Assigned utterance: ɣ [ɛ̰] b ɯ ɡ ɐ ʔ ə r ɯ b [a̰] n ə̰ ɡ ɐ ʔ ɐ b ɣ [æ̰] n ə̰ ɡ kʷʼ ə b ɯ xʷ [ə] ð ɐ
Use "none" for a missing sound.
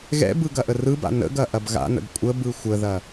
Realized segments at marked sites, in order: ɛ̰, a̰, a̰, ə

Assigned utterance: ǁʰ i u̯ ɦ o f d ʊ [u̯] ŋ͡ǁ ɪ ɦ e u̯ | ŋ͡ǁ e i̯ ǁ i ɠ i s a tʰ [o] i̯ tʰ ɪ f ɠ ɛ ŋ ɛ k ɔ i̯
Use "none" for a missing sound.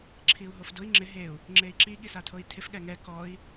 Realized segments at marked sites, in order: i̯, o

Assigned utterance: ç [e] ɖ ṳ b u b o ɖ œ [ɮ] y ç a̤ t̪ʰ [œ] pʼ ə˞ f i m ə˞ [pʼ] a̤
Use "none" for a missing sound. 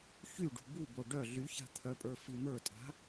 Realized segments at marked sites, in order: y, ɮ, œ, tʼ

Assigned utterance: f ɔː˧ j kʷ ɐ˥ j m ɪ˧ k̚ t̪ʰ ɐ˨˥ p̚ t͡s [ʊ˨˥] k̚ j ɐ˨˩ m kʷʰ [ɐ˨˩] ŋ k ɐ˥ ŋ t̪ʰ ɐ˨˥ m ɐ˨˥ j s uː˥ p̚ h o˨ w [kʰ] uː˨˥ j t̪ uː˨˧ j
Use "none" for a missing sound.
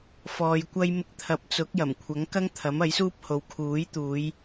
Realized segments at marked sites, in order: ʊ˨˥, ɐ˨˥, kʰ

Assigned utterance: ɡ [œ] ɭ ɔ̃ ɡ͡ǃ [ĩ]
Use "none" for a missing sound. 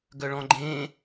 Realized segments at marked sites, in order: œ, ẽ

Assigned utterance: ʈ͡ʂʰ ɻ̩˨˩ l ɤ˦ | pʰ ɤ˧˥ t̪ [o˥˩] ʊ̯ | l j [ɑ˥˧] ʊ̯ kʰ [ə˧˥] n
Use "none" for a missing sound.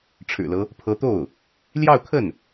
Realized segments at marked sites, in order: o˥˩, ɑ˥˧, ə˥˩

